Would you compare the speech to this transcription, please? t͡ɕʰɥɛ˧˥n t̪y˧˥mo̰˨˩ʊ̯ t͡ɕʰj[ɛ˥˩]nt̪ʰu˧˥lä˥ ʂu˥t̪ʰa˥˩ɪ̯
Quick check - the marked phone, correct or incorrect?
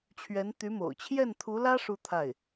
correct